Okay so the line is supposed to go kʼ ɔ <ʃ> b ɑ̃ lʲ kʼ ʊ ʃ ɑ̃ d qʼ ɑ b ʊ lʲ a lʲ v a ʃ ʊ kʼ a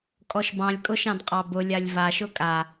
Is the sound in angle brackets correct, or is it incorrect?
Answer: correct